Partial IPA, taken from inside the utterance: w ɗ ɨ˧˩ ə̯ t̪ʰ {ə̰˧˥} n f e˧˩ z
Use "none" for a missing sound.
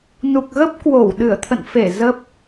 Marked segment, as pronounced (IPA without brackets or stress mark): ə̰˧˨